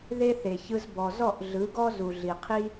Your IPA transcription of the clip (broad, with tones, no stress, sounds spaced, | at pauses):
ð e˦ θ e˨ ç ɯ˧ z b ɔ˨ z ɔ˦˨ ʔ ɮ ɯ˨˦ ɡ ɔ˦ z u˨ ɮ i˨ qʰ i˦